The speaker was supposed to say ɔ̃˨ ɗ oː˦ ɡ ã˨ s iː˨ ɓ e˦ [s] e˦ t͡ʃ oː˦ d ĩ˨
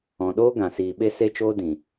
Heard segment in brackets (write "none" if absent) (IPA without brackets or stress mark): s